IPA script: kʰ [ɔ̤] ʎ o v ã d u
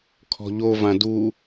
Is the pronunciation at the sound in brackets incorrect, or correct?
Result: correct